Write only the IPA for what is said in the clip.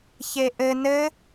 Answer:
ç e ʔ ɘ n ɘ

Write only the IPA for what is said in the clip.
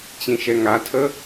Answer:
t͡ɕ ĩ ʃ ɛ ŋ a tʰ ə

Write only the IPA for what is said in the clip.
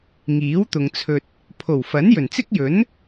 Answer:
ŋ iː˨˥ w t̪ ʊ˨ ŋ t͡sʰ ɵ˧ t̚ | pʰ o˨˩ w f ɐ˨˥ n j ɵ˨˩ n t͡s ɪ˥ k̚ j ɵ˨˥ n

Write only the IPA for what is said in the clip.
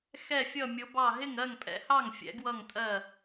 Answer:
x ɛ˥˩ fʲ ʌ˥˩ mʲ ʊ˨˥ b ɑ˥˩ ɦ ɪ˥˩ ŋ ɜ˥˩ ŋ pʼ ɛ̰˨˥ h ɑ˥˩ ŋ fʲ ɛ̰˨˥ ɡ w ʌ˥˩ ŋ tʼ ɜ˥˩

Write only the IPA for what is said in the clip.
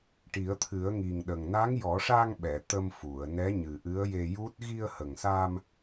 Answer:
ʈ i˨˩˦ ə̯ t̪ʰ ɨ˨˩˦ ə̯ ŋ i˨˩ ŋ ɗ ə˨˩ ŋ n a˧˥ ŋ j ɔ˨˩˦ ʂ a˧ ŋ ɓ ɛ˨˩˨ t̪ ə˧ m f u˨˩˨ ə̯ n ɛ˧˥ ɲ ɨ˨˩ ʔ ɨ˧˥ ə̯ j e˧ j u˦˥ t̚ ɣ i˧ ə̯ h ə˨˩ ŋ s a˧ m

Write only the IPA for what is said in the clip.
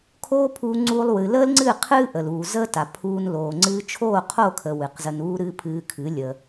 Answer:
kʰ oː˦ pʰ uː˧ ŋ͡ǀ uː˧ lˠ w ɨ˨ l əː˦ l ŋ͡ǀ ɨ˦˨ qʰ ɨː˦ ʔ ə˨ l uː˨ z əː˦ t a˨ pʰ uː˧ n l oː˨ ŋ͡ǀ ɨː˧ t͡ʃʰ oː˦˨ qʰ o˦˨ kʰ ə˨ w ɨ˨ q z ə˧ n uː˦ ɾ ɨː˦ pʰ ɨː˧ kʰ ɨ˨˦ lʲ ə˧

